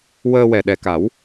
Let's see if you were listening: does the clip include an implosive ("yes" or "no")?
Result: yes